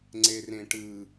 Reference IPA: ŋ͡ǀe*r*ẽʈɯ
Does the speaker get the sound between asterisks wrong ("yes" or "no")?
no